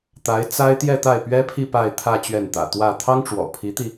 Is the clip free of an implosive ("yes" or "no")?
yes